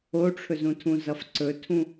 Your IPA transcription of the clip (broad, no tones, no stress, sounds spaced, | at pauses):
o ʈ͡ʂʰ ɵ z ũ tʰ ũ z ʌ f ǀ ɵ tʰ ũ